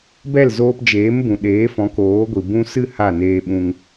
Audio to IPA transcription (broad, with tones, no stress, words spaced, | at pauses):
bɛ˦˨lzoː˧pd͡ʒeː˨˦m bũ˨ɗeː˨˦fɔ̃˨˦ koː˨˦ɡʷi˨ bũ˧sɨ˦˨ ha˦˨neː˧ɓũ˧ŋ